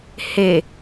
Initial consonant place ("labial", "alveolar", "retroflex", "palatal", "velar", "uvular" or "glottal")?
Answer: glottal